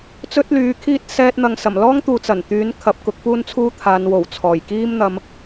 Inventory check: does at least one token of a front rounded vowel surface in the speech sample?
yes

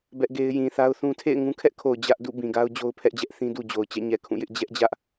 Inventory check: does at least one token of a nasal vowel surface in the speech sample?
yes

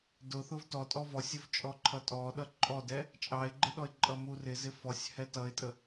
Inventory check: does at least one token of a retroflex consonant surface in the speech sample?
no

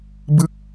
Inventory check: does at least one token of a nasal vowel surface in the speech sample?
no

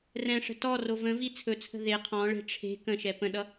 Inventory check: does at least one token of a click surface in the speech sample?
no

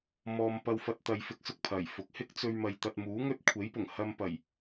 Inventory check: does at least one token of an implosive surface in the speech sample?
no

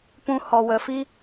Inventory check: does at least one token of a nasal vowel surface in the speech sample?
yes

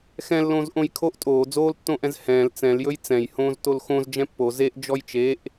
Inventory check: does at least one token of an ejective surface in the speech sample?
yes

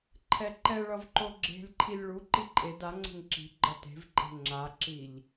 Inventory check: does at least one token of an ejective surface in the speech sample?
yes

